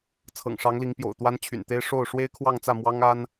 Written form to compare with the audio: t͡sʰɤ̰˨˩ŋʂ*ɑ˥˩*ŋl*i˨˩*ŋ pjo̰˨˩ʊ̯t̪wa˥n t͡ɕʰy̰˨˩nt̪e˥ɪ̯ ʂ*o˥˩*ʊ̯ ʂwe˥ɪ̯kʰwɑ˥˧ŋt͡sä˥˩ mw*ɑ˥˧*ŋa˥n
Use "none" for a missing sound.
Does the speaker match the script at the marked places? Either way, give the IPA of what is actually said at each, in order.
ɑ˧˥, i˧˥, o˥˩, ɑ˥

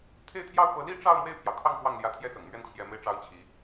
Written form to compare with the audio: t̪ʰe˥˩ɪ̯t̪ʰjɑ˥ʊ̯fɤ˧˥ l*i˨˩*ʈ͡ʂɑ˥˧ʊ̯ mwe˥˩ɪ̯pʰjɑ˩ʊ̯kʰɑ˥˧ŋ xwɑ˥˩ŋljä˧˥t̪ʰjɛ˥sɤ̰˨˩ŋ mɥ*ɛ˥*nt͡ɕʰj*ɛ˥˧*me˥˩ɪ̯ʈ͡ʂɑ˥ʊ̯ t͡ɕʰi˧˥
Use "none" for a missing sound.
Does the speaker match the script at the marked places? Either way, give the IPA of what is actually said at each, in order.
i˥˧, ɛ˥˩, ɛ˧˥

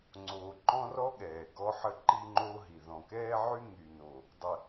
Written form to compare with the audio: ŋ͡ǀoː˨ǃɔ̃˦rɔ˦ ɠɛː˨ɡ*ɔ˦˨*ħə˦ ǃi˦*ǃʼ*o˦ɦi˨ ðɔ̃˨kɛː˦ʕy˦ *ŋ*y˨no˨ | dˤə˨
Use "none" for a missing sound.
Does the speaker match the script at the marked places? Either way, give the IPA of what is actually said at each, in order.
ɔ˦, ŋ͡ǃ, ŋ

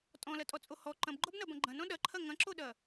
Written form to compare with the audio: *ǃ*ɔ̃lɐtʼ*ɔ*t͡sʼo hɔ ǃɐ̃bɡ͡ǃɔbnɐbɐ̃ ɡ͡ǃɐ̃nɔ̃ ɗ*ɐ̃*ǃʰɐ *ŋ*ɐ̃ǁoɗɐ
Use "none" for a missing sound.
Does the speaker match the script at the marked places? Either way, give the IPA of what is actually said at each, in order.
tʼ, ɔ, ɐ, ŋ

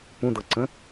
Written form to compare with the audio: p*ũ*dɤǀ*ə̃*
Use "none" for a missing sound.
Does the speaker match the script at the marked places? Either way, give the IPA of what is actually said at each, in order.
ũ, ə̃

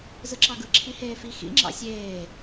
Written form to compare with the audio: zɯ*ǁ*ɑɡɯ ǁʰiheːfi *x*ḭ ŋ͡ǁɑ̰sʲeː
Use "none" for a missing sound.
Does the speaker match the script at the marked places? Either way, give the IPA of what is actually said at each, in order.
ǁ, x

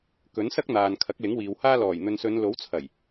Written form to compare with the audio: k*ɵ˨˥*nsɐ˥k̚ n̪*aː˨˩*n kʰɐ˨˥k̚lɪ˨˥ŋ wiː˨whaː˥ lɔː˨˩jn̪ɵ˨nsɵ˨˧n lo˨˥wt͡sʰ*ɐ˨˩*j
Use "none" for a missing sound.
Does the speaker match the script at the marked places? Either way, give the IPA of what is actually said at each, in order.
ɵ˨˥, aː˨, ɐ˨˩

